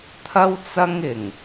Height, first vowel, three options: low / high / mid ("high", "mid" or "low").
low